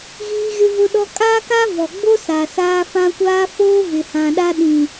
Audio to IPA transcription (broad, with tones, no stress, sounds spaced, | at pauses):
ɣ iː˦ ɣ ɪ˦ v ʊ˦ ɗ ɔ˦ kʼ aː˦ k a˦ v ɔ˨ ɡ͡b o˦ s a˨ s aː˦ f ã˦ kʷ aː˦ f oː˦ v ɪ˨ h ã˨ ɗ a˦ ɗ ĩ˨